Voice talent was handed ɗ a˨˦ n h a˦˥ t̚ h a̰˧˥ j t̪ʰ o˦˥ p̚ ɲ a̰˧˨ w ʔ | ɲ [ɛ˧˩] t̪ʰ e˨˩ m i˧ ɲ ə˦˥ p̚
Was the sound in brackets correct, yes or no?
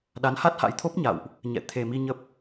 no